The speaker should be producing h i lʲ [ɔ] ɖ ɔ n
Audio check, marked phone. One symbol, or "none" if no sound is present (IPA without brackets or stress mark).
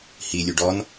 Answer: ɵ